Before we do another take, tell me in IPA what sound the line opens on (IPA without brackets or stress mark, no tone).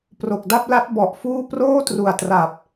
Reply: p